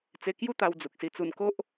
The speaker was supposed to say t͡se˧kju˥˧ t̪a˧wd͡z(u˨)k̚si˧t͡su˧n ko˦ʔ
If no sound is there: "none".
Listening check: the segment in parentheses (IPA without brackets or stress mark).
u˨